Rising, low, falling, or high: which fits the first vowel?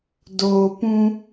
low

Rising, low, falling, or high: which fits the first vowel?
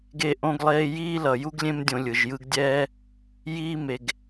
high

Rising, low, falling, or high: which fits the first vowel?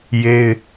high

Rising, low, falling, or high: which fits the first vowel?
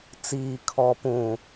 low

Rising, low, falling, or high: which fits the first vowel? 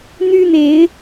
high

